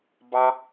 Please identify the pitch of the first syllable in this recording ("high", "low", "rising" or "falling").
high